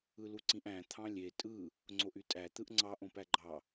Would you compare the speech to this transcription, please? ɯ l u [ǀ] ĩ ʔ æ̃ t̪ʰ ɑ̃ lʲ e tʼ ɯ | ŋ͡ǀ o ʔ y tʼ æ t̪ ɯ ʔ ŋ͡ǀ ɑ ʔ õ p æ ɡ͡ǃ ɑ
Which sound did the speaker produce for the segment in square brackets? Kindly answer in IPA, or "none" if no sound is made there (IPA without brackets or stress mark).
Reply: ǀ